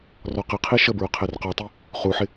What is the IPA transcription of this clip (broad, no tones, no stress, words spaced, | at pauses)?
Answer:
rɔqɪqʰi ʃəbɹʊ qʰɛrqɔtˤi | χuħɪ